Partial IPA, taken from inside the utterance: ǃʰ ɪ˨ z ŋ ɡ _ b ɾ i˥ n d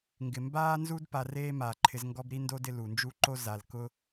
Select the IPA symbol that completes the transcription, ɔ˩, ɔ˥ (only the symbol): ɔ˥